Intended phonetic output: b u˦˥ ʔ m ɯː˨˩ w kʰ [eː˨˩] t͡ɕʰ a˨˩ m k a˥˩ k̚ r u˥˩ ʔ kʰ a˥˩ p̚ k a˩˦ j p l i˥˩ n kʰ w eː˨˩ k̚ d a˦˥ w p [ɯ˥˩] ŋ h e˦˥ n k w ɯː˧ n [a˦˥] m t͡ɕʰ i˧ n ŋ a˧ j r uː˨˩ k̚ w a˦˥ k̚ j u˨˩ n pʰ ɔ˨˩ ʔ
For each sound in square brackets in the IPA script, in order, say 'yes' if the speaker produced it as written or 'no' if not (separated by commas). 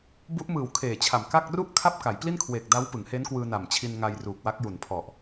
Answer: yes, no, no